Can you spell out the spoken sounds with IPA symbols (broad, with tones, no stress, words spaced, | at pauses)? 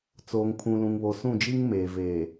t͡soː˨ŋpʰũ˨lũ˨ŋβo˨ sũ˦˨d͡ʒi˦ŋmeː˨ veː˨